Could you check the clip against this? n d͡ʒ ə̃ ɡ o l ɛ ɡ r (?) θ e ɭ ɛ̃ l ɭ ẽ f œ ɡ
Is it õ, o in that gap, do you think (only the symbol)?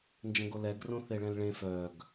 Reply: õ